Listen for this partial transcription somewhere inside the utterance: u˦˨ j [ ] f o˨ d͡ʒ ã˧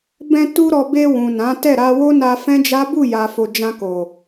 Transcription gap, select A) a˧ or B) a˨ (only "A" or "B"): B